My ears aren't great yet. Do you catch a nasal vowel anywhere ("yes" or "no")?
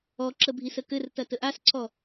no